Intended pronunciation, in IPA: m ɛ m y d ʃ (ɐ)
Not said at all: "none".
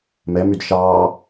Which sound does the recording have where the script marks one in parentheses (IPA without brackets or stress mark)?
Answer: ɑ